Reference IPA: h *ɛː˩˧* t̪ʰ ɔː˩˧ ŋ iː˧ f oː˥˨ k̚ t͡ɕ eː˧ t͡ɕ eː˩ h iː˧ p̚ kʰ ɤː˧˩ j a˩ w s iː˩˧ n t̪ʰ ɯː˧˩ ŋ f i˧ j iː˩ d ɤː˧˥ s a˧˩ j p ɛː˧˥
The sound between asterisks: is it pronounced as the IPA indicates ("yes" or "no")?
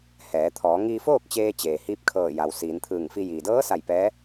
yes